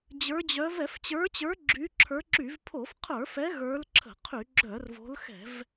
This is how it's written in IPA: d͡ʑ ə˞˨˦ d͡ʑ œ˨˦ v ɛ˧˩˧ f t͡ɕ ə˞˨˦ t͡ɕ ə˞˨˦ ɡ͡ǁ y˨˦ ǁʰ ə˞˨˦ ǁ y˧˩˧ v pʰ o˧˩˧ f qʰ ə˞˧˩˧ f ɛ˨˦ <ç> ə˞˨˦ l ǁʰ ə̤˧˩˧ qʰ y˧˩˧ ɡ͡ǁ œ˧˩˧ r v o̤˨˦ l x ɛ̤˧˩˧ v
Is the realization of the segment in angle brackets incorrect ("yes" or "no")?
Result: yes